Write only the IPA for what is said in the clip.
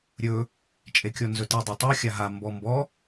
ɾʲ ɵ | t͡ʃʼ e kʲ ɔ n z ɵ t i dˤ e tˤ o xʲ a ɦ a m b ɔ m b ɔ

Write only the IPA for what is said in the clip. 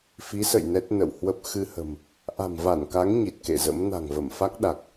f i˨˦ s ə̰˧˨ j n ɛ˦˥ t̚ n ə̰˧˨ w h w ə˦˥ p̚ x ɨ˧ h ə̤˨˩ m | ʔ a̤˨˩ m v a˧˩ n k a˨˦ ŋ ɲ i˨˩ t̚ k ḛ˧˨ z ə̰˧˥ m n a̤˨˩ ŋ v ə˧˩ m f a˦˥ k̚ ɗ a˨˩ k̚

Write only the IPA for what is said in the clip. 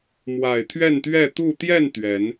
m w a˨˩ ɪ̯ t̪ʰ ɥ ɛ˥˨ n t̪ ɥ ɛ˥˨ t̪ u˥˨ t̪ j ɛ˥˨ n t̪ ɥ ɛ˨˦ n

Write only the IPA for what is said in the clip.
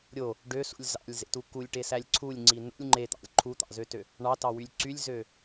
ɾʲ o | ɖ ø s ṵ lʲ z ɑ̰ lʲ z ḛ t u k u lʲ ʈ e s æ lʲ ǀʰ u lʲ ŋ͡ǀ i n ṵ lʲ ŋ͡ǃ e t̪ ɑ̰ lʲ ǃʰ u t̪ ɑ̰ z ø t ø | ɳ ɑ t ɑ w y lʲ ǀ y lʲ z ø

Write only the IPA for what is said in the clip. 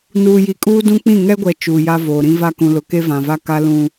n uː˨ j i˨ kʼ uː˦ d ũ˦ k͡p ĩ˦˨ ŋ ɛ˦ ɡʷ ɛ˨ t͡ʃ uː˨ j a˦ v oː˨ ɾ ĩ˦ v a˦ k ũ˨ l ʊ˨ k e˦ v ã˨ v a˦ k a˦ l ũ˨

